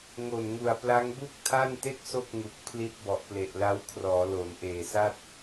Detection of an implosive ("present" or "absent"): absent